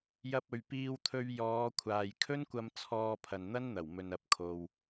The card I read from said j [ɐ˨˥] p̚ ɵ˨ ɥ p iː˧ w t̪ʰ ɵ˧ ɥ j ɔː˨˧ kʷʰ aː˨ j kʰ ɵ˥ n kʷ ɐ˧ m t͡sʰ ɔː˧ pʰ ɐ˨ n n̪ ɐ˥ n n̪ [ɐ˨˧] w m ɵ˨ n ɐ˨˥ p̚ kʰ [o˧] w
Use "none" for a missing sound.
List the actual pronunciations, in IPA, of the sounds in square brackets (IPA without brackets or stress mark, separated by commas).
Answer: ɐ˧, ɐ˨˩, o˨